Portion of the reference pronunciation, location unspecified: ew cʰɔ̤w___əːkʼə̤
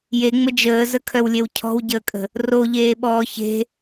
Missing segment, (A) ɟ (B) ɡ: A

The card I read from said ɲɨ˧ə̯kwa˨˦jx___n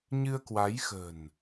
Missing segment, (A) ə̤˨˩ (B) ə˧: A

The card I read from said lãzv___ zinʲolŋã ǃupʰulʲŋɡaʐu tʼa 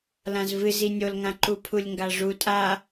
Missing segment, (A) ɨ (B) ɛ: A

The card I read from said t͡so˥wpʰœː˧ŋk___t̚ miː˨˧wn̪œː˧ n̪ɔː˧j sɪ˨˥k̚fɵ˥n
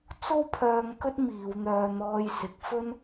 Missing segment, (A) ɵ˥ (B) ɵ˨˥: A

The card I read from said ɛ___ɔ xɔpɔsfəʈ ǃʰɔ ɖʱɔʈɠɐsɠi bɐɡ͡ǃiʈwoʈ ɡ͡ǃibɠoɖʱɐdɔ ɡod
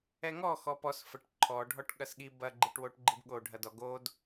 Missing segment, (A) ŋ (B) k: A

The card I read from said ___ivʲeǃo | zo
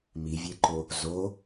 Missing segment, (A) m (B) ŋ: A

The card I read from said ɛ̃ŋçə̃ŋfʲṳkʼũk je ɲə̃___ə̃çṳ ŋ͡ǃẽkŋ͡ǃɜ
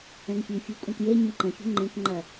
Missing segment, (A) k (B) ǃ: B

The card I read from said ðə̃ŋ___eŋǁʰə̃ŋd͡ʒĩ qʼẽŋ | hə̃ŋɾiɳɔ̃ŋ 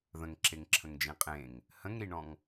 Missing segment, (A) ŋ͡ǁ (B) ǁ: B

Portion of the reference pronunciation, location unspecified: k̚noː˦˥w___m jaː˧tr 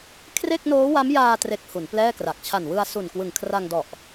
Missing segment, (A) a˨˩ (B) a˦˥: B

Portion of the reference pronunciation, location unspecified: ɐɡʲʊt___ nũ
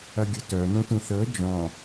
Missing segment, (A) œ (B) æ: A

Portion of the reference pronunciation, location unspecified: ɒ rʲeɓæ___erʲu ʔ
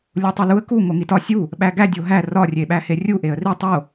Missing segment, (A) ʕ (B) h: B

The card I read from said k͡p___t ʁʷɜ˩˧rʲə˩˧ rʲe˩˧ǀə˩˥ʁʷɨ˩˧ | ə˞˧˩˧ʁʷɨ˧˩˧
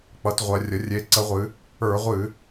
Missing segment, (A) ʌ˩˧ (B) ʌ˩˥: A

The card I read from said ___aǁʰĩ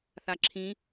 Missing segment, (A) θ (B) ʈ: A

